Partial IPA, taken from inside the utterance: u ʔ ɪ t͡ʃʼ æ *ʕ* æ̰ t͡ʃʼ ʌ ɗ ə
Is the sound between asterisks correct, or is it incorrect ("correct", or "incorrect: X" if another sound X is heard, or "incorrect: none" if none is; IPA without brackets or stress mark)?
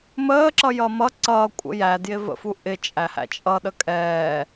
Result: incorrect: h